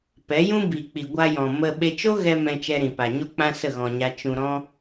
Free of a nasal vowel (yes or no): no